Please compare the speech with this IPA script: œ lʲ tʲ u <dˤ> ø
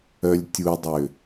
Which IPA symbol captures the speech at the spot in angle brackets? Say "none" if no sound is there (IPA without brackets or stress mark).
dˤ